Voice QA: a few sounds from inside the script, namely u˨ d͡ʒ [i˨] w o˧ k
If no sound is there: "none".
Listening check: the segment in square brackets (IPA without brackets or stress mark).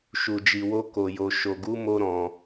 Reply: i˨